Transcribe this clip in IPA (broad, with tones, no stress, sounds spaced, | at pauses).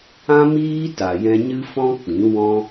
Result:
ã˦ m iː˦ t a˨ j ɛ̃˧ ɲ ɨ˦ f ɔ̃˦ k͡p ĩ˨˦ w ɔ̃˦